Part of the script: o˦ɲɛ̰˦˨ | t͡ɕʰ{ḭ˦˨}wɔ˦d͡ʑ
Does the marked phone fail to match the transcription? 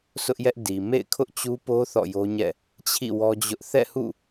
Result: no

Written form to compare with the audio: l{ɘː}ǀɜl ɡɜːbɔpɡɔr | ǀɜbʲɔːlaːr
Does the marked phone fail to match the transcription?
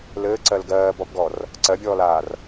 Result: no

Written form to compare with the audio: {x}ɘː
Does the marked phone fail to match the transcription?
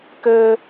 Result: yes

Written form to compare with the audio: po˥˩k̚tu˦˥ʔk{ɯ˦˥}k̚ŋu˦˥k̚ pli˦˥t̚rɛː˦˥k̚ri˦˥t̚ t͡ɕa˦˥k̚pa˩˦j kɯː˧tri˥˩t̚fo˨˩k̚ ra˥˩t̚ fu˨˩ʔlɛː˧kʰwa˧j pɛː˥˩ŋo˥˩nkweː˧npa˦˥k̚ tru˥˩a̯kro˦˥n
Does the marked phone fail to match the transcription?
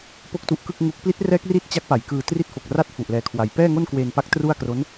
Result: yes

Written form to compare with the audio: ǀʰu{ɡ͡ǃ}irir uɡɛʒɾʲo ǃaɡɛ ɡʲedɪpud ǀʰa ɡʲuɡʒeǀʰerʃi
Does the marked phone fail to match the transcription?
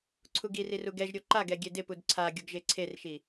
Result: yes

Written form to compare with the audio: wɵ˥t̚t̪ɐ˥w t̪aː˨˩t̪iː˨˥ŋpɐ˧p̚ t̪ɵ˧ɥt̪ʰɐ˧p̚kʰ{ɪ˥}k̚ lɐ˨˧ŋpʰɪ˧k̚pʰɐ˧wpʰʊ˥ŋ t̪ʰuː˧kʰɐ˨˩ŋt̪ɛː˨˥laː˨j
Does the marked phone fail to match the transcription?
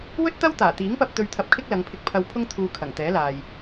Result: no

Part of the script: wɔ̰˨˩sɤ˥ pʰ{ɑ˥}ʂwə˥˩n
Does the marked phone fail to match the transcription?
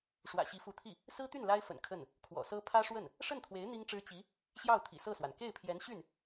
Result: yes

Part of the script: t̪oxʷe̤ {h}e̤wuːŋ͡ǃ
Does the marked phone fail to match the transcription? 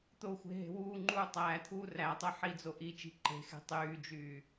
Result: yes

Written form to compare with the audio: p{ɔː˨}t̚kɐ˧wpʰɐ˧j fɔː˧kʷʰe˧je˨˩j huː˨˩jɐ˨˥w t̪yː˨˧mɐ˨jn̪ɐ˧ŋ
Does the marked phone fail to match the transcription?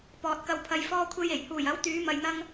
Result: no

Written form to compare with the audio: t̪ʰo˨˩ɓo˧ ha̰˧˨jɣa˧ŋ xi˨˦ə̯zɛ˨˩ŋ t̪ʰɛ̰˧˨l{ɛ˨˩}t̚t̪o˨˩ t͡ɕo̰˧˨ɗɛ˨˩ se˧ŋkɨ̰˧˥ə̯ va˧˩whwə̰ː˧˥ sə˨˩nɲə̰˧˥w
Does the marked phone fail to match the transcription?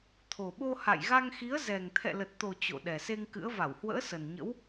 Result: yes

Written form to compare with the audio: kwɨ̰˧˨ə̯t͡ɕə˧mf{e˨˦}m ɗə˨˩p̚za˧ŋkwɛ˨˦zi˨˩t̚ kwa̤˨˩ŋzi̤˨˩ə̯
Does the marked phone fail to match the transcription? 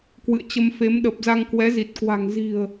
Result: no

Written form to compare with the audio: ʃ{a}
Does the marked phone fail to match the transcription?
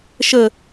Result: yes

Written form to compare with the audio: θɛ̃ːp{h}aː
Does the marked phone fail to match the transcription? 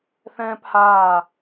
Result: no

